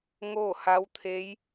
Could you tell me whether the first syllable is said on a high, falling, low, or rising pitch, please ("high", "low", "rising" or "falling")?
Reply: falling